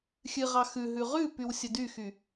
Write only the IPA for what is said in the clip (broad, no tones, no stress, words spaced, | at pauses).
xʲɨʁɑ xʉɦʉ ʁʉpyw sʲədyxy